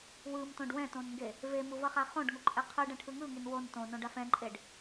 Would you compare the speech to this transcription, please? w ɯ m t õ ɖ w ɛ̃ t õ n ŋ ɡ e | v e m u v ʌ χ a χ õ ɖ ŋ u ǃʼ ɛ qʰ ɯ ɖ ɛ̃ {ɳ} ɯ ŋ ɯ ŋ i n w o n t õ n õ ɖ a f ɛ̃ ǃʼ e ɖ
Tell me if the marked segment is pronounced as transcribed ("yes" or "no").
no